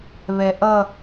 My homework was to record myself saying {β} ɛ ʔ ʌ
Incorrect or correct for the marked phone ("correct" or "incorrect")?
correct